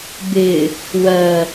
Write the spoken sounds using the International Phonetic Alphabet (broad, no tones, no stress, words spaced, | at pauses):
bɪ | wɜ